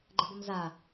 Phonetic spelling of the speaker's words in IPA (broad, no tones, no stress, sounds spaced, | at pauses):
ɡ͡ǃ ə b ə m z a